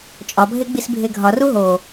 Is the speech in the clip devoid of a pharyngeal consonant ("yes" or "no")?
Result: yes